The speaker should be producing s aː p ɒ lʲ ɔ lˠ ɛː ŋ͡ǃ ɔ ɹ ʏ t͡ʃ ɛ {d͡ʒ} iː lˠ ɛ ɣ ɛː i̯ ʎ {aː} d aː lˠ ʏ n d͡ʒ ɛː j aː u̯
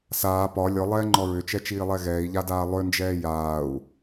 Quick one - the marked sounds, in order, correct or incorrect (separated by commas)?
incorrect, incorrect